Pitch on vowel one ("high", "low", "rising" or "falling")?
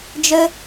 high